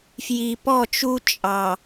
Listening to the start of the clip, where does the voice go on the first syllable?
low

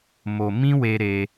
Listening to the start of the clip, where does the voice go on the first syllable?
low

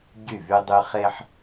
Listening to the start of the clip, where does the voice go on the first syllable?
falling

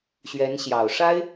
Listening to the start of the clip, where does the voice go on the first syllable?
rising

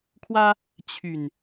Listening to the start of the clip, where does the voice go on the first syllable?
high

